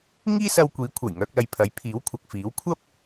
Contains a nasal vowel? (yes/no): no